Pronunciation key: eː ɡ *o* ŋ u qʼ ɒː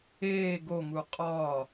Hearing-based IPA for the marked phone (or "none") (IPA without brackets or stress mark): o